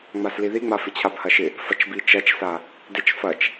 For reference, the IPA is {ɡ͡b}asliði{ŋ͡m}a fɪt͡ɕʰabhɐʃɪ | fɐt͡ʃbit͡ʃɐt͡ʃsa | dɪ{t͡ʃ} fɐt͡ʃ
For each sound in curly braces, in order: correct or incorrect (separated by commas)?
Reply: incorrect, correct, correct